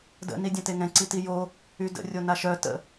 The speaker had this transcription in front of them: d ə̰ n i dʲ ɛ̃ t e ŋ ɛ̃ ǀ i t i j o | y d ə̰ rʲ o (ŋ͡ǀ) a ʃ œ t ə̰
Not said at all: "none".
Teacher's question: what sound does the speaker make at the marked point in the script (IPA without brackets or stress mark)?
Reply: n